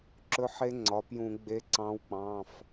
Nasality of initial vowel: oral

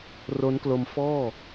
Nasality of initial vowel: oral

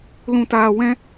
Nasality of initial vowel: nasal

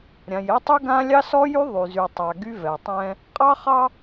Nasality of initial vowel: nasal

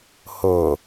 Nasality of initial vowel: oral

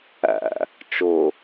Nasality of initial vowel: oral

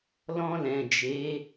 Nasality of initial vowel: nasal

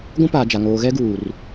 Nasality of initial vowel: nasal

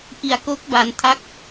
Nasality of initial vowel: oral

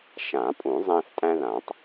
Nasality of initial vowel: nasal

